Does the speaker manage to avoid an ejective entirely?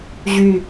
yes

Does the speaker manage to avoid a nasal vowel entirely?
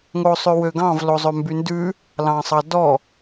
no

